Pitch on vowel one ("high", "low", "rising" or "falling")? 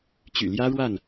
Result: low